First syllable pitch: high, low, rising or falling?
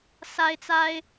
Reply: high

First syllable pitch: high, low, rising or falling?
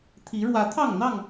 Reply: rising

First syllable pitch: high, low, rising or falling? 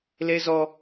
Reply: high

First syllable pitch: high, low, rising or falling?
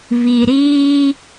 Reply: low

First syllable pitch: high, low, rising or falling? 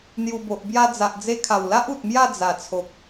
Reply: low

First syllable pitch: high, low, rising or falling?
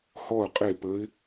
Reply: falling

